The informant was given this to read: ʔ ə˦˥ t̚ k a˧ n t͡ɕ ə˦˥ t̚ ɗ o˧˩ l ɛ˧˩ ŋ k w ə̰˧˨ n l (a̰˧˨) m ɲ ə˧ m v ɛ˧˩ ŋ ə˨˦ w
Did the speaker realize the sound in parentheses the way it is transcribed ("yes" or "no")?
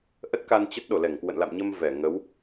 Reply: yes